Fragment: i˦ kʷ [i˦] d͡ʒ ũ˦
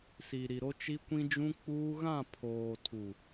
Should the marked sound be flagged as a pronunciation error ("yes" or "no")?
yes